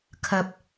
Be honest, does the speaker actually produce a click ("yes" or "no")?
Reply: no